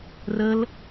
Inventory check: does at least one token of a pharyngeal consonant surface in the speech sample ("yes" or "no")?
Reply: no